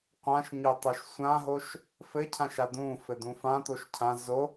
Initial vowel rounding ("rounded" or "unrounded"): unrounded